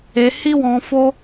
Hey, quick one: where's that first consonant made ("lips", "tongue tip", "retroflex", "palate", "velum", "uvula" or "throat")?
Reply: throat